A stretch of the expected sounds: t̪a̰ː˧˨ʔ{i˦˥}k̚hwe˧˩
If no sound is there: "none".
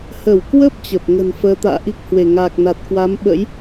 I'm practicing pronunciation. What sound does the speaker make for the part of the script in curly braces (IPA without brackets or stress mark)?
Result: i˦˥